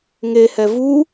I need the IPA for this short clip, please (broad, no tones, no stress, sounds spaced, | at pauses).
ŋ e h ɛ v u